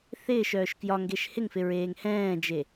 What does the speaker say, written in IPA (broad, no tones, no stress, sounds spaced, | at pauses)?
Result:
θ ɪː ʃ œː ʃ k j ɒ ŋ ɡ e ʃ h ɪ ŋ f ɪ ɹ eː ŋ h ɛ̃ː d͡ʒ e